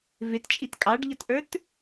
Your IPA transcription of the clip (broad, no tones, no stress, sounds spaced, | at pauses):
v ɪ t t͡ʃʼ i t kʼ ɑ ɖ ʎ ʌ t ʔ ə˞ t